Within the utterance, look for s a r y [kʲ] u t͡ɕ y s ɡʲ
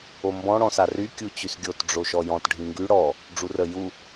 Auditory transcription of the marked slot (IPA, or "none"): kʲ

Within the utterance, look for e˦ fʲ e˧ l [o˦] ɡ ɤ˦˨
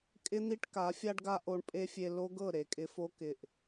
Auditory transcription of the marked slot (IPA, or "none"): o˦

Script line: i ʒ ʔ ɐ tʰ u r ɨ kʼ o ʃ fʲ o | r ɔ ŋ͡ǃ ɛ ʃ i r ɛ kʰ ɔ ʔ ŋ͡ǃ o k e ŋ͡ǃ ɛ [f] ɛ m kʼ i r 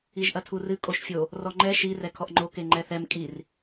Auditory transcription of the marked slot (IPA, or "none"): θ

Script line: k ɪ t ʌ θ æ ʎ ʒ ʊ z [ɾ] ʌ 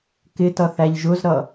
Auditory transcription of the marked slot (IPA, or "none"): ɾ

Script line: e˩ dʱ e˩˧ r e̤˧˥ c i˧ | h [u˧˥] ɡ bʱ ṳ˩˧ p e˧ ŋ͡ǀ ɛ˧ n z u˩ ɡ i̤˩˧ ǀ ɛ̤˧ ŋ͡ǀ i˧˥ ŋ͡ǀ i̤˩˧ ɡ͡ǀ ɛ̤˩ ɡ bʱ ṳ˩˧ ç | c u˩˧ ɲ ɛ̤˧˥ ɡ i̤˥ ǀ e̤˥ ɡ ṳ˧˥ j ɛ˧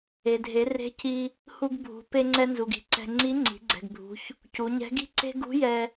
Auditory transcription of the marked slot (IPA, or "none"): u˧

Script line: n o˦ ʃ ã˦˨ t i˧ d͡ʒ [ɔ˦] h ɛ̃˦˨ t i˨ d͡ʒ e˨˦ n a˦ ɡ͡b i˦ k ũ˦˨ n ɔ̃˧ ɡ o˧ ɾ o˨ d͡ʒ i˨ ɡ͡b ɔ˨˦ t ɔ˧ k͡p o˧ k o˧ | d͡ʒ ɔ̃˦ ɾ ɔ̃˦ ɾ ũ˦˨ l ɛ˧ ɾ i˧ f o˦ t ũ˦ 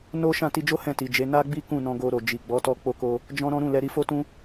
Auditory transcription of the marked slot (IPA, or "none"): o˦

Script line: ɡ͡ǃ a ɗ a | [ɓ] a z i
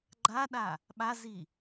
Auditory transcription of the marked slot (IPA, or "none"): ɓ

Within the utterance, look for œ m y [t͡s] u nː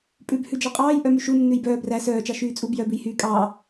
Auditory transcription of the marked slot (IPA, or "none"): ʃ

